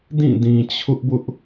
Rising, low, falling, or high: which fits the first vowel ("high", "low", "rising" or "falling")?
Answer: falling